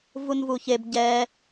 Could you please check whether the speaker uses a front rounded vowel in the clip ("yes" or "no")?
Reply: no